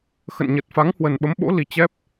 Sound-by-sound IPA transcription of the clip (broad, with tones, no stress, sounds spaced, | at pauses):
x ə̰˧˨ n ɲ ə˨˩ t̚ f a˨˦ ŋ h w ə˨˩ n ɓ ə˨˦ m ɓ o̰˧˥ l i˨˩ t͡ɕ ɛ˦˥ p̚